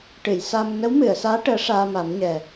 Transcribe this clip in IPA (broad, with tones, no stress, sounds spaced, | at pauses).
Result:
ʈ ɨ˨˩˨ j s a˧ m n ə˧˥ w m ɨ˨˩˨ ə̯ s aː˧˥ ʈ əː˧˥ ʂ aː˧ m a˨˩˦ m ɲ ɛ˨˩